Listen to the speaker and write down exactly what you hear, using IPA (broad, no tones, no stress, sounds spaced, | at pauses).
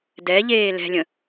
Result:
d ɛ ʎ eː l ɛ̤ lʲ ə̃